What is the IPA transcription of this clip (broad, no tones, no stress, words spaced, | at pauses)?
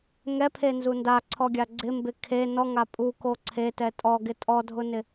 ŋɛpʰenzu ndaǀʰɔɡʲa ɡ͡ǀɪmbɪ kʰe nɔŋa pʼuko ǀʰetɛ tʼɔɡɪ tʼɔdʱʊnɪ